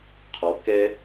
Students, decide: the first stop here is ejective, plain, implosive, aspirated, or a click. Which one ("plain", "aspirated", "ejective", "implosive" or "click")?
aspirated